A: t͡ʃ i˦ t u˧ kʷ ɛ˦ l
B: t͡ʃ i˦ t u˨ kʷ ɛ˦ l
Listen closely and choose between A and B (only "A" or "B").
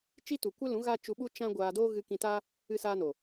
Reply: B